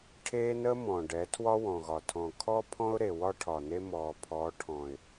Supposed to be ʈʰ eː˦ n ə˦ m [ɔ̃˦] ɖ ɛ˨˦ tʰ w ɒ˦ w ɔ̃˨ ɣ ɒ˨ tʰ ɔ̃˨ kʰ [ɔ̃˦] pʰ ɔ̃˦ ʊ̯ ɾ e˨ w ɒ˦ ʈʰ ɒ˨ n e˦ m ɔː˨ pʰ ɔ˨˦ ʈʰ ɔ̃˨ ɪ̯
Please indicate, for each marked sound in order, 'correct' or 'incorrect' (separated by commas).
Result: incorrect, incorrect